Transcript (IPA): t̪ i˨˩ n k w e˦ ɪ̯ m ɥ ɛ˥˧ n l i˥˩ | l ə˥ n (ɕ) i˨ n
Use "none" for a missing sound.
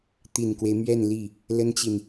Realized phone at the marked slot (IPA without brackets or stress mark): t͡ɕ